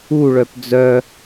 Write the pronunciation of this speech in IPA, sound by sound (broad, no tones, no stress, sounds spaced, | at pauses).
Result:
u ɭ œ p d͡z œ